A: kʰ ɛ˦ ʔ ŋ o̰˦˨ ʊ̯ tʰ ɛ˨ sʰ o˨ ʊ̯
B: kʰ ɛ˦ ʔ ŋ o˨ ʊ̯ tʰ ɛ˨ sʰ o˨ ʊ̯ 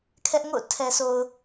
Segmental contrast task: A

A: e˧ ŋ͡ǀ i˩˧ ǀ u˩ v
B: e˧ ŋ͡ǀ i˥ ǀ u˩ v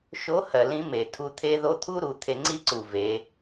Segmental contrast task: B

